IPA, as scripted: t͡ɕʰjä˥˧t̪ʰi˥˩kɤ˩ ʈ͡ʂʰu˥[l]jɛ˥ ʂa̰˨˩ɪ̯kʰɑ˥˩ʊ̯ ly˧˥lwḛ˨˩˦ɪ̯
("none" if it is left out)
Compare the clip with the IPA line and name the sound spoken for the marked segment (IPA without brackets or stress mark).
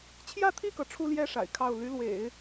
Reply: l